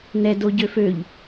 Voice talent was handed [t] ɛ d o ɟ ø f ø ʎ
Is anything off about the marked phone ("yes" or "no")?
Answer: yes